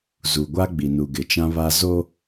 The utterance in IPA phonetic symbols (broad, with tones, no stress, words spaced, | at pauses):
zu˨ɡʷa˦ ɡ͡bi˨nu˨ɡɪ˨t͡ʃã˦ βa˦ zo˦